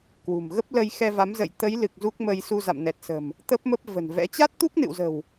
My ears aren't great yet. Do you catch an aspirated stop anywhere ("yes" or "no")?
no